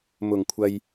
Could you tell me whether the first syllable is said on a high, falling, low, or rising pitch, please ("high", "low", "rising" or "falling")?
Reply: low